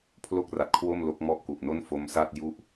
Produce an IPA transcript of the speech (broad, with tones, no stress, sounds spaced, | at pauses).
pʰ l o˥˩ k̚ r a˨˩ t̚ kʰ w o˥˩ m l o˦˥ k̚ m ɔ˥˩ ʔ k u˨˩ ʔ n o˥˩ n f o˦˥ m s a˥˩ t̚ j u˥˩ ʔ